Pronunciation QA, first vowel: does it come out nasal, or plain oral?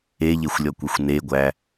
oral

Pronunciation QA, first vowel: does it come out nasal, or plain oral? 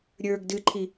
oral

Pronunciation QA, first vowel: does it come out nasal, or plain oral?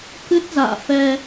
oral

